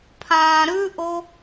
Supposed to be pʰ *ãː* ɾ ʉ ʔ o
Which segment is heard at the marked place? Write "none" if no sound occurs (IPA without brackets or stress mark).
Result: ãː